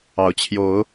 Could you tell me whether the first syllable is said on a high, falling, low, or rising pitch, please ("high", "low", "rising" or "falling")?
rising